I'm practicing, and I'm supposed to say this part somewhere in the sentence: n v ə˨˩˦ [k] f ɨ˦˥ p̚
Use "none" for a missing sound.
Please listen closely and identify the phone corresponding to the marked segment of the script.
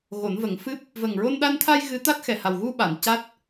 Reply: ŋ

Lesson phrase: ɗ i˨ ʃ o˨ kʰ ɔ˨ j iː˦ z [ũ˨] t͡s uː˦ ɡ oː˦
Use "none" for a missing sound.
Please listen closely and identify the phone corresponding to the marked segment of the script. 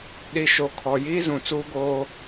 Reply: ũ˨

